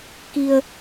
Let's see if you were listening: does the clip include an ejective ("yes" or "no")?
no